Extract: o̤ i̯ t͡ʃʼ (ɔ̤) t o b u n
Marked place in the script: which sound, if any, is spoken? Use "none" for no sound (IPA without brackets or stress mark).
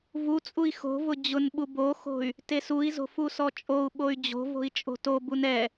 o̤